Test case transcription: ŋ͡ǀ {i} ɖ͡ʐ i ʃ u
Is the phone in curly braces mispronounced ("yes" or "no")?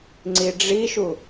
no